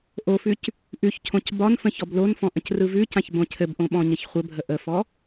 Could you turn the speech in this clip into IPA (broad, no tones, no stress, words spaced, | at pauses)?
ʔofʉc | ʔʉçcʰõc bɒnfə̃ çɔblonfɔ̃ ʔə̃crɯvʉcãç bõcʰɘbʔõ ɓɔ̃ɲəçχʷəbʱə ʔəfɔ